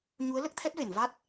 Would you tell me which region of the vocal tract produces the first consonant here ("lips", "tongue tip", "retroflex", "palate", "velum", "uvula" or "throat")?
palate